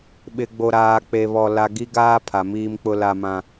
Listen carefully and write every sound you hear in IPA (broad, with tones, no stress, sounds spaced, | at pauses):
ɓ ɪ˨ ɡ͡b o˨ ɾ aː˨ k͡p e˨ β ɔ˨ l a˨ ɡ i˦ ɡ aː˦ pʰ a˨ m iː˦ m k͡p ʊ˦ l a˦ m ã˦